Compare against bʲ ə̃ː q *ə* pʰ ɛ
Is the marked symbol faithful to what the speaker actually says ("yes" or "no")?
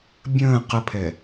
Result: yes